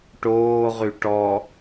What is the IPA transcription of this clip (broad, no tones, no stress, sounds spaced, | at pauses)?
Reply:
ʈ oː ʁ y ʈ ɔ